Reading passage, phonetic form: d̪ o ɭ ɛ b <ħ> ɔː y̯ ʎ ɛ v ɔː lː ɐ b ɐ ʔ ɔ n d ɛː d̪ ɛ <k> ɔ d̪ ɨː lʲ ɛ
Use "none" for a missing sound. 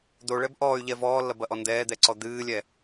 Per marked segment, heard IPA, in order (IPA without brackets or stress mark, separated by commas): ʔ, ǀ